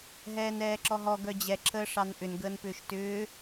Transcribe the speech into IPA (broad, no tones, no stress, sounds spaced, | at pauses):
ɦ ɛː n ɛː ǁ ɔ ɦ ɔ ɡ œ d͡ʑ ɛ ǁʰ əː ʂ ɑ n ʔ ʏ n ɡ əː n p ʏː ʃ t ʏː